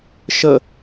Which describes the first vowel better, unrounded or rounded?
unrounded